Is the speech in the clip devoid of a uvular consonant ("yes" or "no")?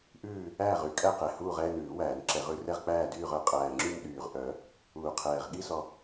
no